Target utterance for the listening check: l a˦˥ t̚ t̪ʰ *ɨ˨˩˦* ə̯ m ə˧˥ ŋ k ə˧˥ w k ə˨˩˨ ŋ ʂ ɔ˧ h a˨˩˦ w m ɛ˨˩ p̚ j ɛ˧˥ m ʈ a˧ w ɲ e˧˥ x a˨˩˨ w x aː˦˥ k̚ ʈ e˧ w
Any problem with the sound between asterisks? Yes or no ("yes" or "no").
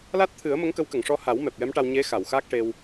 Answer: no